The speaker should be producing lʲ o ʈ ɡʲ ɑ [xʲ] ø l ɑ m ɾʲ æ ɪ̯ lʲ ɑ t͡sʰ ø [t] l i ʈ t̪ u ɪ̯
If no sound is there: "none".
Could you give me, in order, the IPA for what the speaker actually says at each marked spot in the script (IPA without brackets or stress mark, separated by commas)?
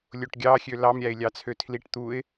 xʲ, tʰ